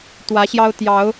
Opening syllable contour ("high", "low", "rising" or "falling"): rising